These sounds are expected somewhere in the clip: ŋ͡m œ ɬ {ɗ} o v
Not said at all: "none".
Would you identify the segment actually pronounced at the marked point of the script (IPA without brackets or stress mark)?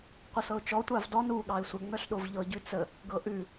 ɗ